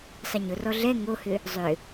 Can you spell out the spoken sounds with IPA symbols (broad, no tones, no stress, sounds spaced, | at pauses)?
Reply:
sˤ i ɲ ʊ r ɔ ɮ ɛ ŋ o h ʏ | zˤ ʏ